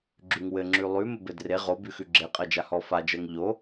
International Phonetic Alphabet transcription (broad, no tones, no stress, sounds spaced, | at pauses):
ɡ͡ǁ ʉ ŋ w ɘ ŋ͡ǁ ʉ lˠ ʉ m ɘ b ɘ d r e ʁ o b ʉ x ʉ ɡ͡ǁ e qʼ ɜ d͡ʒ a h ɔ f a d͡ʒ ɜ ŋ ʎ o